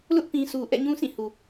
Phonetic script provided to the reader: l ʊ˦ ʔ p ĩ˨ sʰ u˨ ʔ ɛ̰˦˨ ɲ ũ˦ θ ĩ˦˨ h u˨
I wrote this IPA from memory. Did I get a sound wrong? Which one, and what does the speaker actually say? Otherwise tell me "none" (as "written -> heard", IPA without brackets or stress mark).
θ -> s